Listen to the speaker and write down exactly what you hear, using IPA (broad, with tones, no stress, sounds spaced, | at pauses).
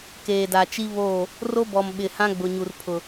k eː˨ d a˨ t͡ʃ i˦ β oː˦˨ | r o˦ b ɔ˨ m ɓ ɪ˨ h ã˦ ɡ͡b ʊ˨ ɲ u˨ r pʰ ʊ˨